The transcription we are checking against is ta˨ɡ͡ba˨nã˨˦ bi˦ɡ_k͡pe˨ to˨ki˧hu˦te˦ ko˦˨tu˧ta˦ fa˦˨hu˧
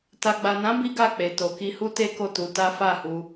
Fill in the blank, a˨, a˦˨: a˦˨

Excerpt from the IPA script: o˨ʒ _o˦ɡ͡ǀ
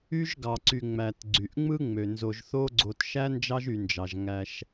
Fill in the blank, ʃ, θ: θ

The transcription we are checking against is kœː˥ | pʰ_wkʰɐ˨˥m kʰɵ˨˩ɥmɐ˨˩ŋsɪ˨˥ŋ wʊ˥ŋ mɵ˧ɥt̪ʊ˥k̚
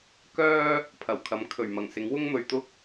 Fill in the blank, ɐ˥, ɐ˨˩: ɐ˨˩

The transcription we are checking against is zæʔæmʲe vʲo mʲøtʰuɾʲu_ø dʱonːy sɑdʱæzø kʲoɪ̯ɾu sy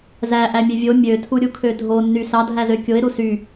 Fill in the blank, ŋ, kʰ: kʰ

